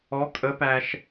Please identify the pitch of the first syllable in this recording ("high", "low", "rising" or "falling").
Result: rising